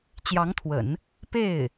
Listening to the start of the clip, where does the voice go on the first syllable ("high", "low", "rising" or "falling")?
rising